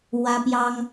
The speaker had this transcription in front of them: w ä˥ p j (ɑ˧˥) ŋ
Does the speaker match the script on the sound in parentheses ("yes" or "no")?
no